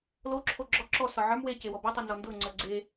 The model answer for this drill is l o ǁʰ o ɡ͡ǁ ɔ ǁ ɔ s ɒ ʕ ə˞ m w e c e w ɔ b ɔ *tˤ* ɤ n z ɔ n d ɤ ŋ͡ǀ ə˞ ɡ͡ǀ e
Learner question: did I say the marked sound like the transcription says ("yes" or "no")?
yes